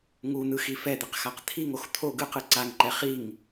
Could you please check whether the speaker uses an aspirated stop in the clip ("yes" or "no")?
yes